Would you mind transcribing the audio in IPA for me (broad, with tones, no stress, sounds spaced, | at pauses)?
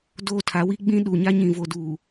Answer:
d oː˦ tʰ a˨˦ w i˦ ɡ͡b ĩ˦ ɗ uː˨ ɲ a˦ ɲ ĩ˨ v o˨ d uː˨